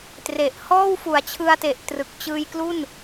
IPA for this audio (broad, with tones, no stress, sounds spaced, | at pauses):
t r e˨˩ ʔ h ɔː˥˩ w f u˨˩ a̯ t͡ɕʰ ɯ˧ a̯ t e˨˩ ʔ t r ɯ˨˩ k̚ t͡ɕ ɯː˧ j k l u˥˩ n